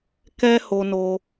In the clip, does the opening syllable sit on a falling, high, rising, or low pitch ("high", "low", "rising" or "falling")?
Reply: high